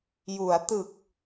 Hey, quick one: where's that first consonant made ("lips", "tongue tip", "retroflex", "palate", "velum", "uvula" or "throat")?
palate